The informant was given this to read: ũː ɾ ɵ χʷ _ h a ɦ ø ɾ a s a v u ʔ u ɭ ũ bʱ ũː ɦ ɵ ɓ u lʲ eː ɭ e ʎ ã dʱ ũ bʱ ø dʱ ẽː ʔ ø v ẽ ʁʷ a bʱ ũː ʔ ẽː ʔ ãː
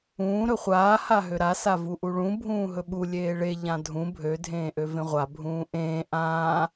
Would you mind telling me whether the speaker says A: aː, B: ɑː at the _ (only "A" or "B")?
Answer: A